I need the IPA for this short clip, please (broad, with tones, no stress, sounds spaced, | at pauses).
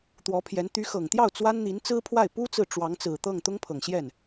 t̪ w ɔ˧˥ pʰ j ɛ˧˥ n t̪ y˧˥ x ɤ˨˩ ŋ t̪ j ɑ˥˩ ʊ̯ t͡s w a˥ n n̪ i˧˥ n t͡s ɹ̩˥ pʰ w a˥˩ ɪ̯ p u˥ t͡s ɹ̩˨ ʈ͡ʂ w ɑ˧˥ ŋ t͡s ɹ̩˨˩ t̪ ɤ˥˩ ŋ t̪ ʊ˥ ŋ pʰ ɤ˨˩ ŋ ɕ j ɛ˥˩ n